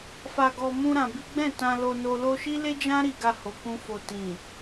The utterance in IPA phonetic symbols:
f a˧ ɡ ɔ˧ m ũ˧ ɾ ã˧ b i˦ ɡ͡b ɛ̃˦˨ t ã˧ l o˧ n o˧ l o˧ ʃ i˦ l e˦ d͡ʒ ã˦ ɾ i˧ ɡ a˧ h o˨ k ũ˧ f o˨ t ĩ˨

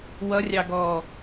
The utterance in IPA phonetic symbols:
w ʌ rʲ ɑ ɡ ɔː

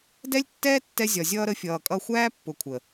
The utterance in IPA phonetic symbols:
d ɛ˦ lʲ tː ɛː˦ tː ɛ˧ zʲ ɒ˨ zʲ ʌː˧ ɾ ə˨˦ fʲ ʌː˨ kʼ ʌ˧ xʷ æː˦ pː ʊ˨ kʷʰ ə˨

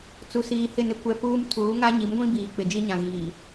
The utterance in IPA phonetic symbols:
t͡s u˨ s iː˨ h ɪ˦˨ n ɪ˦ kʷ ɛ˨ p uː˦ m tʰ uː˨˦ ŋ a˦ ɲ i˨˦ m ɡʷ ĩ˦ b iː˨ k͡p ɪ˨ d͡ʒ i˦ ɲ ã˨ ɣ iː˨

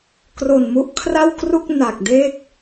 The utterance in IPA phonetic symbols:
k r o˨˩ n m u˦˥ ʔ kʰ r a˥˩ w k r u˥˩ k̚ n a˨˩ k̚ d e˥˩ k̚

